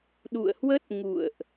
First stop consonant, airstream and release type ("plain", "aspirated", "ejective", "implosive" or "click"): implosive